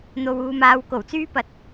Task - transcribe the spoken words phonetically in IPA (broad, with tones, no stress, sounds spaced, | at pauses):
n̪ o˧ w uː˧ m aː˨˧ w k o˨˩ w t͡s yː˥ p ɐ˧ t̚